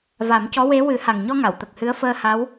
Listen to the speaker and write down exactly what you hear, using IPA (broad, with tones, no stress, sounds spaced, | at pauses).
v a˨˩˦ m c ɔ˧˥ w e˧˥ w ɨ˨˩˦ h a˨˩ ŋ ɲ ɔ˧ ŋ a˨˩˨ w t̪ ə˨˩ k̚ h ɨ˧˥ ə̯ f əː˧ h a˧˥ w